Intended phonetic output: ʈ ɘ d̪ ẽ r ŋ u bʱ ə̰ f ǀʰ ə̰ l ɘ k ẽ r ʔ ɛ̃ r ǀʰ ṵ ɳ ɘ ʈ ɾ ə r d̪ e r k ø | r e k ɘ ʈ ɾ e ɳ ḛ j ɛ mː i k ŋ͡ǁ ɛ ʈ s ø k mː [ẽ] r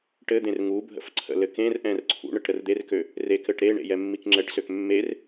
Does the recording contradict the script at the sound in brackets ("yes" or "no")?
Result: yes